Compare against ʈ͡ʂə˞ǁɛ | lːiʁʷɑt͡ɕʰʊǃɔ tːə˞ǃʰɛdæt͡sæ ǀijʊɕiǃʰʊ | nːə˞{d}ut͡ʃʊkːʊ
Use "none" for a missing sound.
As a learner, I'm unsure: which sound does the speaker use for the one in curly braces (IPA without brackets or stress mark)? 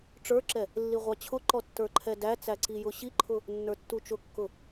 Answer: tː